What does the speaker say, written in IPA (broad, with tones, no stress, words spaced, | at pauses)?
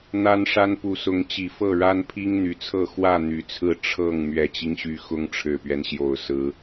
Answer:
n̪a˦nʂa˦n pu˨˦sʊ˨˦ŋt͡ɕi˨˩ fɤ˥˨ɻa˦npʰi˦ŋ n̪y˨˩t͡sʰɤ˥˨ xwä˥˨ n̪y˨˦t͡sʰɹ̩˥˨ ʈ͡ʂʰɤ˥˨ŋ mɥɛ˨˩t͡ɕi˦ŋɕy˨˦ xʊ˦ŋʈ͡ʂʰɻ̩˨˩pɥɛ˦nɕjo˨˩ʊ̯ sɹ̩˨˦